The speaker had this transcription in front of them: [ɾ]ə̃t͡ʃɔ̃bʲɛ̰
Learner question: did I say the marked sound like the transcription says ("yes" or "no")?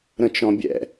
yes